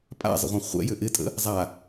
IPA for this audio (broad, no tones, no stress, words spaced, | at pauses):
pʼa̰zˤə̰ʁʷã χʷɛ̰jʏ ʔɪtʼə̰ | zˤa